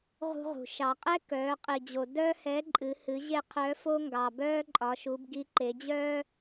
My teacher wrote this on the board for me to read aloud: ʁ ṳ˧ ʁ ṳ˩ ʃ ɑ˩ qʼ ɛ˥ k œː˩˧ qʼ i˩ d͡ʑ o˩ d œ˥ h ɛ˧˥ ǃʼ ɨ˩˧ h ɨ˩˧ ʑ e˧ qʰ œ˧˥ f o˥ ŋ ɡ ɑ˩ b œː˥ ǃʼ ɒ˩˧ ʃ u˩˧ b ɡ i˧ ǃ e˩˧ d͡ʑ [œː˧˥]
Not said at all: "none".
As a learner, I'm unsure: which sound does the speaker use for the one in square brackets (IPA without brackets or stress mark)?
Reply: œː˥